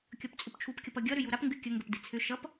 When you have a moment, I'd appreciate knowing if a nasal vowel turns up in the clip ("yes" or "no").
no